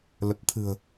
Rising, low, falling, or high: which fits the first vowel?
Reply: low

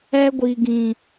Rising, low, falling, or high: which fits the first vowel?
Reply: high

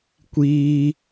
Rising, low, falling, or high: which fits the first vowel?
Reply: high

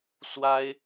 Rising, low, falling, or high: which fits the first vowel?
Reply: high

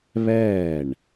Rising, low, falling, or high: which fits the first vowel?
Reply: falling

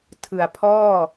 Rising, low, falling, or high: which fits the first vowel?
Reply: low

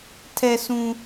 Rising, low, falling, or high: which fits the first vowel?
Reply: low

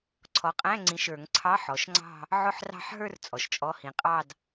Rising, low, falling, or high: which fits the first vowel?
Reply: rising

